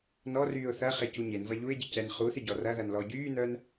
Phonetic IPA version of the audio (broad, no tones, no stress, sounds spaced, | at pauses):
n ɔ r yː ʊ̯ θ ɐ χ e c u ɲ e n v ɐ ʎ u ɪ̯ ɟ ɪ c ɛ n χ u θ ɪ ɟ ɔ r ɐ ð ɐ n l ɔ ɟ yː n œ n